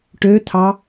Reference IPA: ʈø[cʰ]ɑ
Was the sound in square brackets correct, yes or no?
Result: no